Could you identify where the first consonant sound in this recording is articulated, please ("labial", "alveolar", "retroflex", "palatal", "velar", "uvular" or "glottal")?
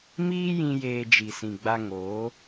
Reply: labial